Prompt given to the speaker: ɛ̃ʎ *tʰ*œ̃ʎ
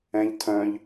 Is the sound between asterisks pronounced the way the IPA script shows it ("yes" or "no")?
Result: yes